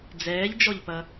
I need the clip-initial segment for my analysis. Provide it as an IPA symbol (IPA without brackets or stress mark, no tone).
d͡z